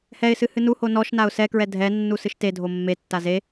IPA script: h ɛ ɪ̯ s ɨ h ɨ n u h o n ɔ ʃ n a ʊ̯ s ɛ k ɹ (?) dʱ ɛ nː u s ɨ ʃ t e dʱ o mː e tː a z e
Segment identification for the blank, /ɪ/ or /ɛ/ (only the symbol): ɛ